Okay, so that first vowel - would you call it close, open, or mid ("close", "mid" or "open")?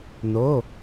mid